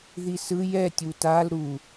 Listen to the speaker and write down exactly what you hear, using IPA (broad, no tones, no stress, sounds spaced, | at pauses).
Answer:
ð i s ɯ j ɛ tʲ u t a l ɾ u